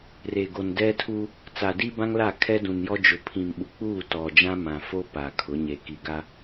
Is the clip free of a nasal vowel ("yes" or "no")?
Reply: no